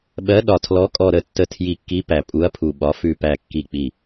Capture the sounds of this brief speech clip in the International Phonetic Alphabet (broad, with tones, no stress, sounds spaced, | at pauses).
ɓ ɜ˨˥ ɗ ɒ˧˩ tʰ l ɔ˨˥ kʼ ɔ˧˩ ɾ ə˧˩ tː ə˧˩ tʰ j i˧˩ kː i˨˥ p æ˧˩ pʼ u˨˥ ɐ̯ pʰ u˧˩ ɓ ɒ˨˥ f ʉ˧˩ p æ˧˩ kː i˧˩ k͡p i˧˩